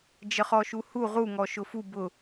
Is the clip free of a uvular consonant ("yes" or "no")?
no